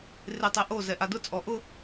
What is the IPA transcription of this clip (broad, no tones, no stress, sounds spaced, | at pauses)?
r ɪ tˤ e ʔ o z ɛ ʔ a d ʊ t͡sʼ ɔ ʔ ʊ